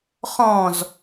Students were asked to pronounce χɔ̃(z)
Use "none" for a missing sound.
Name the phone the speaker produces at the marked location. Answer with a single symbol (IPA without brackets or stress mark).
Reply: z